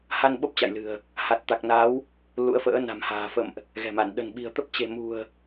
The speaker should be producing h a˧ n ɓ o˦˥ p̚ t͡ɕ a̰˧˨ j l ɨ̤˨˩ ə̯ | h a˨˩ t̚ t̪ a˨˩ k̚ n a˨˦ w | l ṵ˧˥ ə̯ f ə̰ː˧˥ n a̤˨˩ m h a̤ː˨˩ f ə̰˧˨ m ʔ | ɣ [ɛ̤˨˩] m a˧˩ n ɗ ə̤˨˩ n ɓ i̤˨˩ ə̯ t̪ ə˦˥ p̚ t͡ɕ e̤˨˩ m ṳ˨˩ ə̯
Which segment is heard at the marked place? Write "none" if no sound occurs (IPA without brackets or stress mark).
ɛ̤˨˩